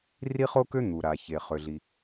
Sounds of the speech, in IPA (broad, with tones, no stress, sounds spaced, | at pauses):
r i˥ χ o˥ k ø˥ n̪ u˩ ɾ a˩ ç e˩ χ ø˩ ɮ i˩